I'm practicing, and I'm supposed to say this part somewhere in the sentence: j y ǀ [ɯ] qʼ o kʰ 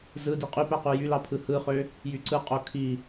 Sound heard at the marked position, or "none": ɯ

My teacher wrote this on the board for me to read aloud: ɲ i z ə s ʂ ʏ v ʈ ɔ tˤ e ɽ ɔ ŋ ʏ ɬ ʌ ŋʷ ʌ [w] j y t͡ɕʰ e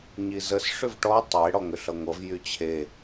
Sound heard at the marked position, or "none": v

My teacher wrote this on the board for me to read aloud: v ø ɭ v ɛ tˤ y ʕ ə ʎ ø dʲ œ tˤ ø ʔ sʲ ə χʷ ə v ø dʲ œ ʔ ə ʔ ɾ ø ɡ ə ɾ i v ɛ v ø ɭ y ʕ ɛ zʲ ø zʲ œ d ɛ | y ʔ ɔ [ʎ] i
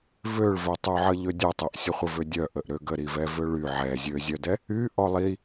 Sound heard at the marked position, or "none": lˠ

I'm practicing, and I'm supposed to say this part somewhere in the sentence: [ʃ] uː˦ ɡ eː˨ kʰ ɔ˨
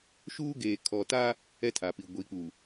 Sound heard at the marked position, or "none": ʃ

